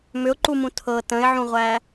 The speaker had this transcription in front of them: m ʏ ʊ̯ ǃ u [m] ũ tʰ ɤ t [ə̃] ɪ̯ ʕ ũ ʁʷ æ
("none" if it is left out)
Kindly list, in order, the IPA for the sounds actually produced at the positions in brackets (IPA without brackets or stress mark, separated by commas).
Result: m, ə̃